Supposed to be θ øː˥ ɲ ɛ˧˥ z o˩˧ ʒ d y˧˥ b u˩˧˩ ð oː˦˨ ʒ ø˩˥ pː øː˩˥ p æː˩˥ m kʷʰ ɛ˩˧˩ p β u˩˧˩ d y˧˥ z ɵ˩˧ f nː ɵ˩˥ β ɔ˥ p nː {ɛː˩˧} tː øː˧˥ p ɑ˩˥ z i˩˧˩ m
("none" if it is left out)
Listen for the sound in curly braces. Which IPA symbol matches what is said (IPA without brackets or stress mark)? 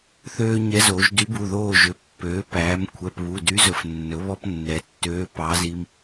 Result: ɛ˩˧